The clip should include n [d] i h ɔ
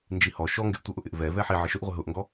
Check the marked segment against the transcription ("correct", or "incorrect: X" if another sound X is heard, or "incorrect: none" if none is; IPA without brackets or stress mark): incorrect: d͡ʒ